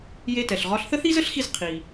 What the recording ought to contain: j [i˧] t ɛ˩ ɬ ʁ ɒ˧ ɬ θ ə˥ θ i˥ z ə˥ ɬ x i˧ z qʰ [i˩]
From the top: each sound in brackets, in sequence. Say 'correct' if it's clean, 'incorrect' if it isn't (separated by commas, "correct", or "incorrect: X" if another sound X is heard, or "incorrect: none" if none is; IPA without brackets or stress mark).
incorrect: e˧, correct